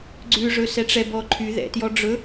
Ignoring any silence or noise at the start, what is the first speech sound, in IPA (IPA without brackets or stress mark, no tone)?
ɡ͡ǀ